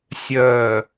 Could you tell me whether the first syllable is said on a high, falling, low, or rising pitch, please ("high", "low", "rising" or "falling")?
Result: low